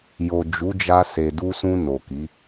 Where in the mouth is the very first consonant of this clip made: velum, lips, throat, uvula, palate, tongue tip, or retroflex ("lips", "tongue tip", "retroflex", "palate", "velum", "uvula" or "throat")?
palate